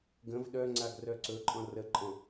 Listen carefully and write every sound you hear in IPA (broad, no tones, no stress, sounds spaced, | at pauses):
ɡ ə̃ v ɗ œ ŋ͡ǀ a ɡ r œ ǀ ɵ ǃʼ ɔ̃ r ə ǃʼ ɔ̃